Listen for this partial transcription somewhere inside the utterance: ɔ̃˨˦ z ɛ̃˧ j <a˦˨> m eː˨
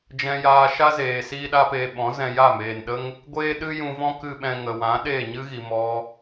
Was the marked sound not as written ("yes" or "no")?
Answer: no